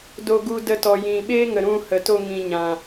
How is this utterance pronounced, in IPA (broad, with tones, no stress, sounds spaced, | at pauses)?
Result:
d o˧ ɡ u˧ d ə˧ t ɔ˨ j ĩ˨ ɓ eː˦ ŋ ə˨ ɾ ũ˧ h ə˨ t o˧ ŋ ĩ˨ ɲ ã˨